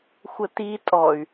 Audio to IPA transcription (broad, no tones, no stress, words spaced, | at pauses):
xʷəti tʼɔy̯